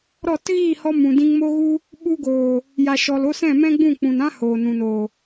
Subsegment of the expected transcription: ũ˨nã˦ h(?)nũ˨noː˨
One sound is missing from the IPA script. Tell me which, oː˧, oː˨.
oː˨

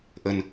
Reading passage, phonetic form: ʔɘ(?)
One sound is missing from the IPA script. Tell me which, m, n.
n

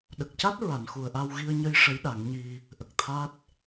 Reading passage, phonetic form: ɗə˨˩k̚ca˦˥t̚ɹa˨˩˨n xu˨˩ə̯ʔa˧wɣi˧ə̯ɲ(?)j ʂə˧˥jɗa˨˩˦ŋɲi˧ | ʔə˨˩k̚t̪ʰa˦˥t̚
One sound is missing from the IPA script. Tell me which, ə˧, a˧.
ə˧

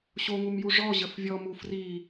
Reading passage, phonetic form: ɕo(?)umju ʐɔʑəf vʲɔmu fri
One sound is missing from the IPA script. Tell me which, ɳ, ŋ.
ŋ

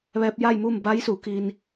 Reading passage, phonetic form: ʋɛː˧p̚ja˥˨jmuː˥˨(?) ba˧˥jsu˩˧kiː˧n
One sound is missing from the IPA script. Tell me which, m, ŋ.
m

